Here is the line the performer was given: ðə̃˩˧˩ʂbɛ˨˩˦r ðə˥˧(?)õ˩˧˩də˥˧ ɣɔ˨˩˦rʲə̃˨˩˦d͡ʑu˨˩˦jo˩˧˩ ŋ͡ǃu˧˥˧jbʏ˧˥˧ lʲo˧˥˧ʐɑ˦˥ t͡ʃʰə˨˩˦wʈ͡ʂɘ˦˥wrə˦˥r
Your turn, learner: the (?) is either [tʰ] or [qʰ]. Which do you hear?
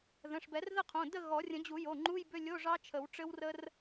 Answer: qʰ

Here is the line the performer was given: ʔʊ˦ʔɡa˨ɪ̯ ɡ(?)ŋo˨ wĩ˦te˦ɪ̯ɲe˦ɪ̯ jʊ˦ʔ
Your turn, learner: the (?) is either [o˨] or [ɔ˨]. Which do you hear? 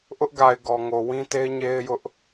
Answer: ɔ˨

